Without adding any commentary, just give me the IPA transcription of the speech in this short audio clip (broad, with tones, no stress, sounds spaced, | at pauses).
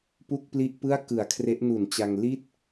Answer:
p u˥˩ k̚ p l i˥˩ ʔ p ɯ˥˩ a̯ k ɯ˨˩ a̯ kʰ r e˦˥ ʔ n u˨˩ n t͡ɕ a˧ ŋ l i˥˩ t̚